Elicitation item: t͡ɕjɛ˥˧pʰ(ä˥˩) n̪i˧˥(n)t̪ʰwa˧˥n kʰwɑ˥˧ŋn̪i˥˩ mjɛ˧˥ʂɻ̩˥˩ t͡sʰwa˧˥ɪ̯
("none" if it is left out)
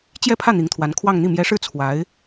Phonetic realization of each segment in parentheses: ä˥˩, ŋ

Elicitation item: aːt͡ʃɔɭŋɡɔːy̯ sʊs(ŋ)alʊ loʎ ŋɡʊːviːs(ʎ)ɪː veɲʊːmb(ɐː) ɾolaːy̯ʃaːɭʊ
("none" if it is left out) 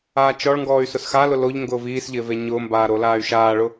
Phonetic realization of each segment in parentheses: x, ʎ, aː

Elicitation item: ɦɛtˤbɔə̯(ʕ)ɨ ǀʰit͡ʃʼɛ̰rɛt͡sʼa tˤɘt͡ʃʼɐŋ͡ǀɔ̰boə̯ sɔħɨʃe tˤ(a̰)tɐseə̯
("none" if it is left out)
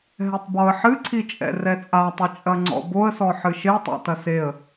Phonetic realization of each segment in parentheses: ħ, a̰

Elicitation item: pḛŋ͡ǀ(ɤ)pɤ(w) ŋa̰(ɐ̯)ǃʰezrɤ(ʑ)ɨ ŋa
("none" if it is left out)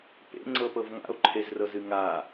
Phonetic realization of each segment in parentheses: ɤ, v, o̯, z

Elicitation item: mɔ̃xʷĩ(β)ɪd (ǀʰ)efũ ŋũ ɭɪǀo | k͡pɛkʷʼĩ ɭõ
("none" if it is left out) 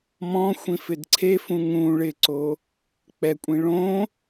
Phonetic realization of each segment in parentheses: f, ǀʰ

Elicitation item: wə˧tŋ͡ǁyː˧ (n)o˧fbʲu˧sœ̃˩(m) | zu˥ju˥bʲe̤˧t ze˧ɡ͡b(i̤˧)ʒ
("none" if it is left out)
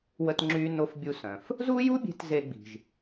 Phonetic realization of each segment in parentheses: n, f, i̤˩

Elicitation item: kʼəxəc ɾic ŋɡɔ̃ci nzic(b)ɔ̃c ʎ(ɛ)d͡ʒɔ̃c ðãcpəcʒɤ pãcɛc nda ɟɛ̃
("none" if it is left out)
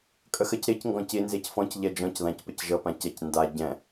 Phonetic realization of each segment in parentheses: f, ɛ

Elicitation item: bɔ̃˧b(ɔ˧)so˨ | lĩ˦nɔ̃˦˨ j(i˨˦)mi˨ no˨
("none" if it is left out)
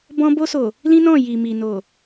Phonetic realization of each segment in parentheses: o˧, i˨

